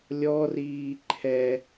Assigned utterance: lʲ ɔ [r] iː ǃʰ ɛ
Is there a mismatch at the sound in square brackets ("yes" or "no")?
no